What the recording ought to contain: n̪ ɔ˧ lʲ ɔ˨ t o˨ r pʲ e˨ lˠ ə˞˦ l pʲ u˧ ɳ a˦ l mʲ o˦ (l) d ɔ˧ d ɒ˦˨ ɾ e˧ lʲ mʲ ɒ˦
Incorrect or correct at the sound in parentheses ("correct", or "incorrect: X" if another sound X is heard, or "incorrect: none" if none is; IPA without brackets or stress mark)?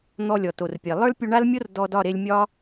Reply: incorrect: r